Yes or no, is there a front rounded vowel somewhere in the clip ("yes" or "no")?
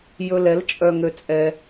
yes